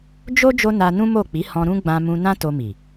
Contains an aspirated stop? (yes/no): no